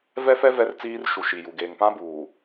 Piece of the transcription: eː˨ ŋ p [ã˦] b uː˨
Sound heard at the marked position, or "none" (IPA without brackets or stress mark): ã˦